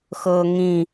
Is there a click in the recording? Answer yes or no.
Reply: no